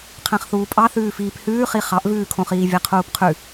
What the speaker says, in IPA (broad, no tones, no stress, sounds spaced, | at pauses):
qʰ æ̃ χ θ uː pʼ ɑ θ ʉː f iː p h ʉː χ i χ ɑ ʔ v ʉː kʰ õ χ iː vʲ æ qʰ uː p qʰ ʉ